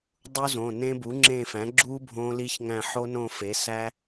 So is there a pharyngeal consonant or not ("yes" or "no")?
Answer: yes